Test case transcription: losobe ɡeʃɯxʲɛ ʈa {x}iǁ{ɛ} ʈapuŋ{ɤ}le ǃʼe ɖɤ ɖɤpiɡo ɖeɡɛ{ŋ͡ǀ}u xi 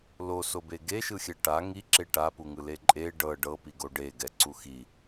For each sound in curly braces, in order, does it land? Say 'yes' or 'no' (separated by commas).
no, no, no, no